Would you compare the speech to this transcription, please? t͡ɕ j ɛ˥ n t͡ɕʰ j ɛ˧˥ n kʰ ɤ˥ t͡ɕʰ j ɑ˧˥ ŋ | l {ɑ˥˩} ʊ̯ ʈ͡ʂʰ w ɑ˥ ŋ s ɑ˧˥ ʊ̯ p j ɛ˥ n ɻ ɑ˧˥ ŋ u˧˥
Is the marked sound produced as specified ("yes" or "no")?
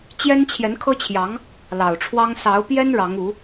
no